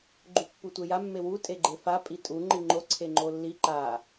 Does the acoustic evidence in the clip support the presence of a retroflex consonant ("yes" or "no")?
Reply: no